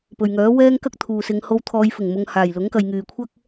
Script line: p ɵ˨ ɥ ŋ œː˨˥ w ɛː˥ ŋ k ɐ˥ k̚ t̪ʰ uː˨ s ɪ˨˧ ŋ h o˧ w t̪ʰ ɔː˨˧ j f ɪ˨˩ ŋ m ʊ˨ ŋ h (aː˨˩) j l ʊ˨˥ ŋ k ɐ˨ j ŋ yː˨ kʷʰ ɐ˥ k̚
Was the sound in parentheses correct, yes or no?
yes